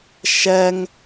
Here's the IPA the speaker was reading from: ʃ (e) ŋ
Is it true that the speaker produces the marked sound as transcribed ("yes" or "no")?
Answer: no